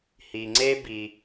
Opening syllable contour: low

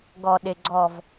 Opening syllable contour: low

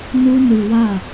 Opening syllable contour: high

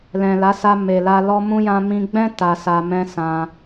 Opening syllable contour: low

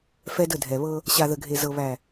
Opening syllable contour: high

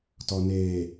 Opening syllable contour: low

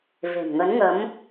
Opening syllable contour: low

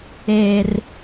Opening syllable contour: low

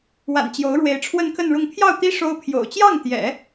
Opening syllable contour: low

